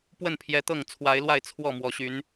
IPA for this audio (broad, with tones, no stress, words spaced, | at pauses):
pwə˥˨npʰjɛ˨˦t̪ɤ˥˨ŋ t͡sʰwa˨˦ɪ̯lwa˥˨ɪ̯ t͡sʰwɔ˥˨mwɔ˨˦ɕy˨˦n